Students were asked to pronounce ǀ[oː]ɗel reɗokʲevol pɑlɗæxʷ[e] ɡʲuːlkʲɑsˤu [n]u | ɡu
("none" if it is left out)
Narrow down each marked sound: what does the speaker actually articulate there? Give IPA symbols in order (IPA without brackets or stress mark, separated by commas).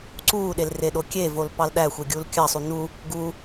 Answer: uː, e, n